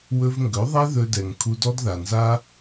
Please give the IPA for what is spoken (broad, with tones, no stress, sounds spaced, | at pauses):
w ɵ˧ v ŋ ɡ ɵ˨˦ ðˤ ɛ˦ ð ɵ˧ d ɛ˨ ŋ kʰ u˧ d ɔ˦ d ð a˨ n z a˦